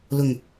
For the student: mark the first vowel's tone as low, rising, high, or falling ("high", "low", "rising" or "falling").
low